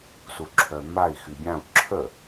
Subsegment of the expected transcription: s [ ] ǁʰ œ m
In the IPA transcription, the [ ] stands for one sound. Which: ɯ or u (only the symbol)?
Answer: u